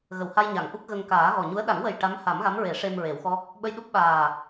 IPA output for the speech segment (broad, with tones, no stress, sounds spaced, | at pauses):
ɣ ə˨˩˨ w h a˧ j ɲ a˨˩˨ ŋ ʔ u˦˥ k̚ ɣ ə˧ ŋ k aː˨˩˦ ɣ ɔ˨˩ ɲ u˧˥ ə̯ ɗ a˨˩˦ ŋ w ə˨˩ j ʈ a˧˥ m h a˨˩˦ m ɣ a˧˥ m ɹ e˨˩˦ ʂ e˧ m ɹ e˨˩˦ w x ɔ˦˥ k̚ | ɓ ə˧ j ɗ u˦˥ p̚ ɓ aː˨˩